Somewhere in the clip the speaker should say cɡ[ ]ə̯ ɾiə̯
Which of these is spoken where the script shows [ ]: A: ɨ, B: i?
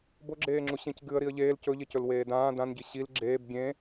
A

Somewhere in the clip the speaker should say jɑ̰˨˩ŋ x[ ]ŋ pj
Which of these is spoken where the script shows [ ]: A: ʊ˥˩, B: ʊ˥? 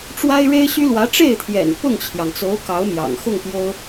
A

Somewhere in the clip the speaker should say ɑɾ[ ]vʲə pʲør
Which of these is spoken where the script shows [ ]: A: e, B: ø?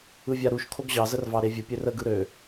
A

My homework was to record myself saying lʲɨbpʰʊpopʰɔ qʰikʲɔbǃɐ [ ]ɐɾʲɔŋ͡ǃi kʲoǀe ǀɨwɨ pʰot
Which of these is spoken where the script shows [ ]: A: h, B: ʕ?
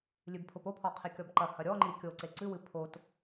A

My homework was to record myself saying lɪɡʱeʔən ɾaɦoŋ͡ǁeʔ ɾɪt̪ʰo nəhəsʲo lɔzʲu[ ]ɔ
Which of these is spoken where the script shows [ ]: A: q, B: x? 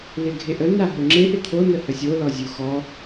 B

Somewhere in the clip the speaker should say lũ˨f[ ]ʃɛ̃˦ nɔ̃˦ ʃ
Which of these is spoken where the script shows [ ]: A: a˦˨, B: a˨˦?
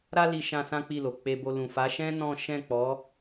B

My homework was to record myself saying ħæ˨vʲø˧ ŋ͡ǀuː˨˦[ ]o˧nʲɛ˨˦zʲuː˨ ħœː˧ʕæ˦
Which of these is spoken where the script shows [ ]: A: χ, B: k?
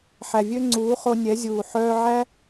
A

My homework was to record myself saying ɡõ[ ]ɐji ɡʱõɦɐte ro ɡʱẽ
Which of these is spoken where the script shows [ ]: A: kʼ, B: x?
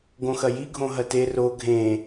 B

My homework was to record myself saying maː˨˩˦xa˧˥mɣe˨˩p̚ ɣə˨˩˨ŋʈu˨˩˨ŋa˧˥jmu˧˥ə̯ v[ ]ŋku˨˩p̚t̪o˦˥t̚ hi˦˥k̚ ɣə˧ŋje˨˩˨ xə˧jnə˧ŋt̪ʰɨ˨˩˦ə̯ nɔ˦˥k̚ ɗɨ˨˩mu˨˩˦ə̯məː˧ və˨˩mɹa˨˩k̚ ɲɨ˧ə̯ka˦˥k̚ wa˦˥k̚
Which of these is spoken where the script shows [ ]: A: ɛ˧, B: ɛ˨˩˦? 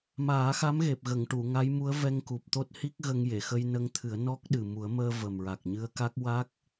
A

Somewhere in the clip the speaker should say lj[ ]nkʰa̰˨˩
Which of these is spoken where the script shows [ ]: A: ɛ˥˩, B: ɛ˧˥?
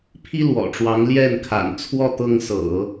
A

